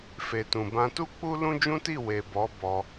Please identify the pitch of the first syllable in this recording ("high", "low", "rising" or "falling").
low